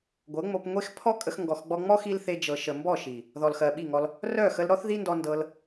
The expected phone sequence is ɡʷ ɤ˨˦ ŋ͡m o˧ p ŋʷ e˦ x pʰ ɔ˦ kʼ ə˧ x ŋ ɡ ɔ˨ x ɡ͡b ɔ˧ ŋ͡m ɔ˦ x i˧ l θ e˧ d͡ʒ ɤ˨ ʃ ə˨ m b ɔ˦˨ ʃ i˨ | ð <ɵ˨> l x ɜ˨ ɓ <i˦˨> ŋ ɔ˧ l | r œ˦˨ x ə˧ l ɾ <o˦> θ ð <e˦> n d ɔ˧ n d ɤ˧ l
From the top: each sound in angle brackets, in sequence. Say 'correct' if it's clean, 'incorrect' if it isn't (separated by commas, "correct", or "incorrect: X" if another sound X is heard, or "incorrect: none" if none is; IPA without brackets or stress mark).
incorrect: ɔ˨, correct, incorrect: ɔ˦, incorrect: i˦